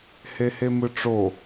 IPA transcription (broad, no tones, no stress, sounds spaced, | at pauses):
h e h e m ɯ ʈ͡ʂ o